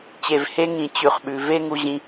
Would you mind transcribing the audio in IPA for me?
t͡ɕ e˨ v h e˦ ŋ ĩ˨ t͡ɕ ʉ˨ χ ɓ ʉ˨ v e˦ ŋ u˧ ʑ ĩ˧

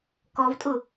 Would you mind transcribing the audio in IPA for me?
k ɔ v tʼ ʊ

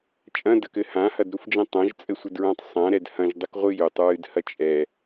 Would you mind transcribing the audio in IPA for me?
t͡ʃʼ ɐ̃ d ɐ k ɘ h ã h ɐ d ɾ u f d͡ʒ ɛ̃ tˤ ã ʒ t͡sʼ ɘ sʷ ɘ d ɹ ã tˤ sˤ ã ɾ ɛ d h ɐ̃ ʒ dˤ ɨ k ʁʷ ɨ j u tˤ ɹ ɨ d h ɐ t͡ʃʼ ɛ

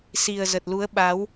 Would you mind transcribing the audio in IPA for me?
s i˨˩ ə̯ z ə˨˩ t̚ l u˨˦ ə̯ ɓ a˨˦ w

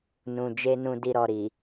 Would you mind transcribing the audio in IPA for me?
n ũ˨ d͡ʒ e˧ n ũ˧ d i˧ ɾ ɔ˨ ɾ i˨

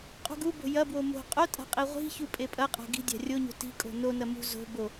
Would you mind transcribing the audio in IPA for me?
qʼ ṳ ɡ u b o̤ j ɐ b w o m o̤ qʼ o tʼ a̤ qʼ i ʁʷ i̤ ç u pʼ e pʼ ɐ qʼ a̤ ɡ i̤ dʲ a̤ rʲ o ɲ o̤ t i̤ kʼ o̤ n o n ɐ m ṳ z o̤ b o

